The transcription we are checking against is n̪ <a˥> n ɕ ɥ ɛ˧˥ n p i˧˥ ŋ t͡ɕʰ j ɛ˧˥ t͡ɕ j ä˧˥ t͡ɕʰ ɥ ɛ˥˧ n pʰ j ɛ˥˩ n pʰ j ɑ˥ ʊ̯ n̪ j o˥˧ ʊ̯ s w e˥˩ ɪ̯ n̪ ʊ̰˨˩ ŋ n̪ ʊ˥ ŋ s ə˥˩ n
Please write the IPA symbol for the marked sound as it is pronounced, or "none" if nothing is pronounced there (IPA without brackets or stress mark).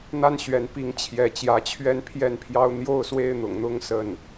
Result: a˥